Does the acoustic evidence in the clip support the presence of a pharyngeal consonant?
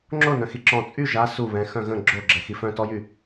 no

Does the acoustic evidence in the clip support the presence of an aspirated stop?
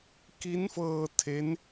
yes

